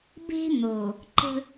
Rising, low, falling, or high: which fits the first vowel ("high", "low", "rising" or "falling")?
high